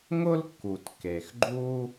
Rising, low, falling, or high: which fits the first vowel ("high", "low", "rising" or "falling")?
high